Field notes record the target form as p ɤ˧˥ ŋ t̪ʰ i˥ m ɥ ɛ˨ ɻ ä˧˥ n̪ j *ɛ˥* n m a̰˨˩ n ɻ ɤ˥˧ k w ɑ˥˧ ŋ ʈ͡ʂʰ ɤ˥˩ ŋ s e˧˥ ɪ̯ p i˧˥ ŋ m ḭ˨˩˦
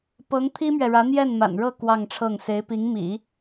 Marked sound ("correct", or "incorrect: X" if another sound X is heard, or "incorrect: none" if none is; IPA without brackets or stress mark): incorrect: ɛ˥˩